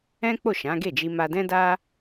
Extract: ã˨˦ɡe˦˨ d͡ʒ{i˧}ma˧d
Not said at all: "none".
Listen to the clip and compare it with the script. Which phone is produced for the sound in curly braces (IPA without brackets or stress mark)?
i˧